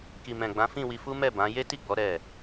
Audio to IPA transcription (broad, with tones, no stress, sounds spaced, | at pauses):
k i˧ m ɛ̃˨ ɡ͡b ã˨˦ f ĩ˦˨ w i˧ f u˦ m ɛ˦˨ b ã˨˦ j e˦ t i˦˨ ɡ͡b ɔ˨˦ ɾ ɛ˦˨